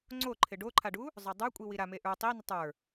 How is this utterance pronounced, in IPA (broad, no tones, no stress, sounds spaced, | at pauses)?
ŋ͡ǀ o ǃʰ ɪ ɖ o ǃʰ a ɖ u | zˤ ə˞ dˤ ə˞ kʷʼ i w i ɾ a m e ʔ ə˞ tˤ i n ɪ tˤ ə˞